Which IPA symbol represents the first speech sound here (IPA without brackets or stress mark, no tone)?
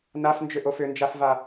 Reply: n